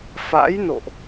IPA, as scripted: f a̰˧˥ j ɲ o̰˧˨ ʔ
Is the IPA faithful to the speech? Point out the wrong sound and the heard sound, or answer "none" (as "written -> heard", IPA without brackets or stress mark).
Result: ɲ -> n